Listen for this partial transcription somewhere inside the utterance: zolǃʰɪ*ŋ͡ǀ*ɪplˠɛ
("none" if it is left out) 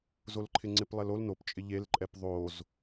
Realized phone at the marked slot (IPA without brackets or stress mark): ŋ͡ǀ